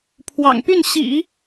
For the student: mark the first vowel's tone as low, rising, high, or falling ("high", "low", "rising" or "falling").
low